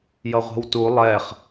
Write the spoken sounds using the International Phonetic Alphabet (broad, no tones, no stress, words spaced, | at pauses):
jʌʁʷɛ̤wtu lˠɛχ